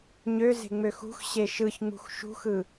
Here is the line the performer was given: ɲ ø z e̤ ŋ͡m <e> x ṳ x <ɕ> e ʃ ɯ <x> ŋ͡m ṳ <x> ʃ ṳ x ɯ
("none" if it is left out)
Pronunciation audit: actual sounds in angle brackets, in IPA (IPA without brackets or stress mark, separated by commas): ø, ɕ, ç, x